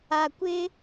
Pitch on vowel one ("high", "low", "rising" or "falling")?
low